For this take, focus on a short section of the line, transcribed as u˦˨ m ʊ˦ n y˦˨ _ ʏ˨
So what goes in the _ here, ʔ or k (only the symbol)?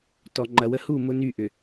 ʔ